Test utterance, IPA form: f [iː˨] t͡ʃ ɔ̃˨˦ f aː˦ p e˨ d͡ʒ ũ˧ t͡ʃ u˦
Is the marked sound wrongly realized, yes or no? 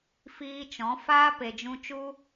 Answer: yes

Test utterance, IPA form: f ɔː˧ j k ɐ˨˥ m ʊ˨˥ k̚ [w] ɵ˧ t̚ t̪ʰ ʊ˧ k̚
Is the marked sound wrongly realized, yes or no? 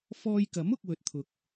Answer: no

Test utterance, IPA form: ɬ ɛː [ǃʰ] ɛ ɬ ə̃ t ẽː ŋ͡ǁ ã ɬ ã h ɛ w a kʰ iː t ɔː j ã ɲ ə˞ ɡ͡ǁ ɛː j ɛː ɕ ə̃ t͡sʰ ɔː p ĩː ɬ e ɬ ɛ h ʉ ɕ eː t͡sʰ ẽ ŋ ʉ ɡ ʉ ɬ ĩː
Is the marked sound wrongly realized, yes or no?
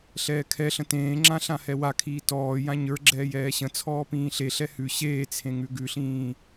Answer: yes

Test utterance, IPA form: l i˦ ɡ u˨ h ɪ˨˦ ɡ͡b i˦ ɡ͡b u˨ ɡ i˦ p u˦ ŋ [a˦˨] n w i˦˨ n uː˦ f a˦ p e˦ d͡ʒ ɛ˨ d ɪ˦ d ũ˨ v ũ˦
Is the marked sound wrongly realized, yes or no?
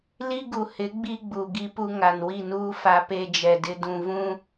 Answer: yes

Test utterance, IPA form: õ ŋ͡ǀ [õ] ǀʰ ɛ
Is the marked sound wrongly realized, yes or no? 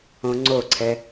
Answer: yes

